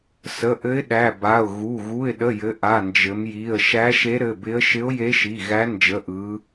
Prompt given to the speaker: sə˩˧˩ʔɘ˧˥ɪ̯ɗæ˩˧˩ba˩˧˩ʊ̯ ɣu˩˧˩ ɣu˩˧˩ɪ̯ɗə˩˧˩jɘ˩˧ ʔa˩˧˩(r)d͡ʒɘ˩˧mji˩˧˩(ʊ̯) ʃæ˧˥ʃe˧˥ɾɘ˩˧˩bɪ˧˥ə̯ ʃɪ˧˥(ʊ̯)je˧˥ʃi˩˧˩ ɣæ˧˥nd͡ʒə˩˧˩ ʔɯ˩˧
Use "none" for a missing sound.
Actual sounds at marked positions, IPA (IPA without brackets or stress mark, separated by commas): n, ə̯, ʊ̯